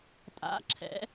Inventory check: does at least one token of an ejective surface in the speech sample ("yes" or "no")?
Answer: yes